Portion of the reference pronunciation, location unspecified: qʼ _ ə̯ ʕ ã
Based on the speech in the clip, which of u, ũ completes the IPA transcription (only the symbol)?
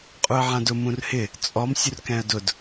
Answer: u